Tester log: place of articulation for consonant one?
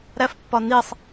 alveolar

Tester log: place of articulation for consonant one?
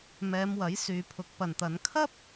labial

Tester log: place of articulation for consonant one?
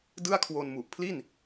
alveolar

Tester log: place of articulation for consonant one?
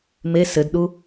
labial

